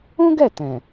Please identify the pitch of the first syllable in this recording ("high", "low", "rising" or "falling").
high